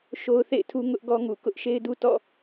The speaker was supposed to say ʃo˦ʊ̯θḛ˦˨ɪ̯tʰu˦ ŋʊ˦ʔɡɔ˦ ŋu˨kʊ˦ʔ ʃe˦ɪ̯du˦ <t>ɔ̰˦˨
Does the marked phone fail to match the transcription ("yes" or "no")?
no